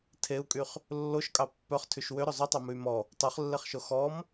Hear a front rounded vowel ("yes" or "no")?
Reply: yes